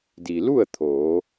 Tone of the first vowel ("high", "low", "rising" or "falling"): low